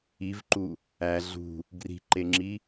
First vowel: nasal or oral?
oral